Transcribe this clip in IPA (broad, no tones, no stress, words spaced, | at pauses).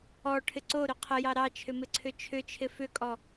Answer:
ɔʈʰɪ ǀoɾʏ qʰəjɑ ɾɑt͡ʃʰʏmɪǀʰʏ t͡ʃʰʏt͡ʃʰɪ fʏkʼɔ